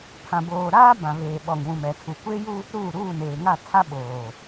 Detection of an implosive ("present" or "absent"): present